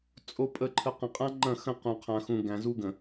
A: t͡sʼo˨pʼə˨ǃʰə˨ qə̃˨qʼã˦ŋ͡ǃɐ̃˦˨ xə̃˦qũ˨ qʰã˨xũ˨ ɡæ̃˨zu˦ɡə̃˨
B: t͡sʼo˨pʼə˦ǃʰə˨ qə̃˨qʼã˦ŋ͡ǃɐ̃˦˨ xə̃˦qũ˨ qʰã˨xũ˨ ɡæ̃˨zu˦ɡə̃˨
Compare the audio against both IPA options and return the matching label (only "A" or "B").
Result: A